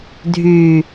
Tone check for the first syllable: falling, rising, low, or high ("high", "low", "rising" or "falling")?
low